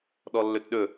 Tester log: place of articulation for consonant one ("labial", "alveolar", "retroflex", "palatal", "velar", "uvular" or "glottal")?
alveolar